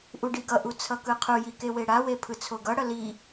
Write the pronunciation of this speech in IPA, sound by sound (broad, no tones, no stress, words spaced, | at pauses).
ʔuɖiɡʌʔu t͡sʰʌkɯqʰuji keweɽawe pʰɯt͡sʰoɡʌɽʌ li